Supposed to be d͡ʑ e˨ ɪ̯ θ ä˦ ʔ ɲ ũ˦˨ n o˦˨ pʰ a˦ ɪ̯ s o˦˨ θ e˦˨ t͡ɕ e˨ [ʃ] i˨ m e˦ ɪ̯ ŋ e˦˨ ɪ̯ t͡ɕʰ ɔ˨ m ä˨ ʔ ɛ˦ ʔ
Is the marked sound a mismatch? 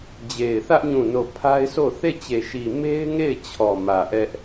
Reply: no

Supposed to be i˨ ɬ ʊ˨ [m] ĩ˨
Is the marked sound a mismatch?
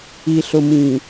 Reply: no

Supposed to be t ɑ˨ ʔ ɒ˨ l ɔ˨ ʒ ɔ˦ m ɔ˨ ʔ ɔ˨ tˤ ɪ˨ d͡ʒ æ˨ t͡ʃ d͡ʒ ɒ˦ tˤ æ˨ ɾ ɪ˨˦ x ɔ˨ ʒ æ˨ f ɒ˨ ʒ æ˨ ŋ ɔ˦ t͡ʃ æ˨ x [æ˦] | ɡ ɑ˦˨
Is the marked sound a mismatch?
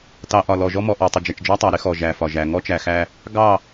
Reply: no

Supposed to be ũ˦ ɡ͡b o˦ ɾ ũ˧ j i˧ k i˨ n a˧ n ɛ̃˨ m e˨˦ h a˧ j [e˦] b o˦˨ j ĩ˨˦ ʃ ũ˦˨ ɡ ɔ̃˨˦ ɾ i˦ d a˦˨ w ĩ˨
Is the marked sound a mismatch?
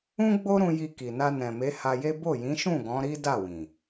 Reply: no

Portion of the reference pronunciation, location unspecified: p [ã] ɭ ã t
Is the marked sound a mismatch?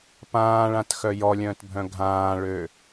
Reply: yes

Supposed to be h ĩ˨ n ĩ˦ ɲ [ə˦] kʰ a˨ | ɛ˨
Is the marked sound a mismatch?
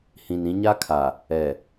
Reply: yes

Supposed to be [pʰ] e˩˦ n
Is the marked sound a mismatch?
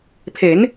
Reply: no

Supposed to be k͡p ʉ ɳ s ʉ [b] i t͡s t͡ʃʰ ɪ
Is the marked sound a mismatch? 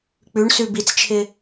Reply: no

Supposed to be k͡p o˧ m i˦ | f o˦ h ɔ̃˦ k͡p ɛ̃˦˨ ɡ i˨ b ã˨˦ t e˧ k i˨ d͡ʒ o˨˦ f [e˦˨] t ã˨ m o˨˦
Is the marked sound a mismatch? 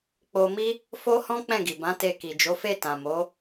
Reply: no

